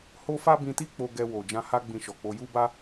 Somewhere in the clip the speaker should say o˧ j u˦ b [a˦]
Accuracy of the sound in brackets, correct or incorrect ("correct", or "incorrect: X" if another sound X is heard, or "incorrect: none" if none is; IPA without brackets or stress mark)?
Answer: correct